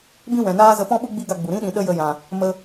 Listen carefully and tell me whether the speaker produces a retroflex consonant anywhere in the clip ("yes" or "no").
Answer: no